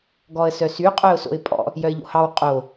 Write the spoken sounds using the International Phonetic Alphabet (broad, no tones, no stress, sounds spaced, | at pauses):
ɡ ɔ ə̯ s œ s y qʼ œ ʊ̯ s o̰ ɪ̯ pʼ ɔ̰ | j œ ɪ̯ ʎ o̰ h ɑ w qʼ o